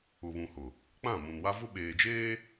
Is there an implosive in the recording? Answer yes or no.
yes